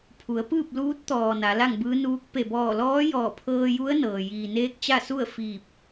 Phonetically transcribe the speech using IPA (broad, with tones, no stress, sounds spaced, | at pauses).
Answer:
pʰ u˩˧ ə̯ p ɯː˥˨ p̚ l uː˧˥ t̚ t̪ ɔː˩ n a˩˧ l a˥˨ ŋ b ɯː˧˥ n uː˧˥ k̚ p e˧˩ b ɔː˧˩ l ɔː˧˥ j ɔː˧˩ pʰ ɤː˧ j u˧˥ ə̯ n ɤː˩ j iː˩ n eː˧˥ k̚ t͡ɕ a˥˨ s u˥˨ ə̯ f iː˧˩ p̚